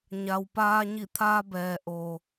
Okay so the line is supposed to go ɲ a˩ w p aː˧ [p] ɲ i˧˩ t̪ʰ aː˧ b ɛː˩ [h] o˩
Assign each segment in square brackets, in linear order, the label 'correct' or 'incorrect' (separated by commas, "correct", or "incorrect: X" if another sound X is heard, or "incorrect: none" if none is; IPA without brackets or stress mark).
incorrect: none, incorrect: ʔ